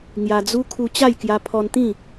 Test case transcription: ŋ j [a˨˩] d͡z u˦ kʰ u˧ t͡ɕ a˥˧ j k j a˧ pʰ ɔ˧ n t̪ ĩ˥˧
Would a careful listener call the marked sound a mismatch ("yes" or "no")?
yes